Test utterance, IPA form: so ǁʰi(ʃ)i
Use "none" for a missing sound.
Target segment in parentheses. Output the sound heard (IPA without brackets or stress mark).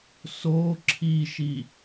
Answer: ʃ